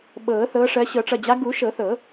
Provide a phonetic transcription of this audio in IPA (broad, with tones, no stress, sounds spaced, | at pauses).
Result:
ɓ ɤː˨˩˦ θ ɤː˨˦ ʂ ɜ˨˦ ɕ ɤ˨˩˦ ʈ͡ʂ ʌ˩˧˩ d͡ʑ a˨˦ ɡ u˨˩˦ ʃ ɤ˨˩˦ θ ɤ˨˩˦